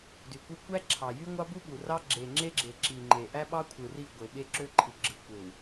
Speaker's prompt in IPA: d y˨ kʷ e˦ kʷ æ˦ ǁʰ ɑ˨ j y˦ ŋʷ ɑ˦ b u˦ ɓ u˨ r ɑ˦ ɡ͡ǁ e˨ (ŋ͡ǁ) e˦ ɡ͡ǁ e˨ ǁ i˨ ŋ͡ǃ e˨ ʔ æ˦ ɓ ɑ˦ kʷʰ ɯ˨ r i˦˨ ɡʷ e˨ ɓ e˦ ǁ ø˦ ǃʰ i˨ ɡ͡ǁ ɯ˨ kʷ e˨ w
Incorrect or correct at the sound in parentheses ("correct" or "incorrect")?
correct